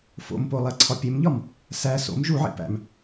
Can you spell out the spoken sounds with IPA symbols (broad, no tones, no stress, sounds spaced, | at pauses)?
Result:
f o̰ m p o lˠ æ ǀʰ ɒ pʲ e m ʎ ɒ m | s æ s o̰ m ʒ u ʕ ḭ p æ̰ m